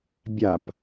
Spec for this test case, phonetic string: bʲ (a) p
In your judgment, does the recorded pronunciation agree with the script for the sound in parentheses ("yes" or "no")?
yes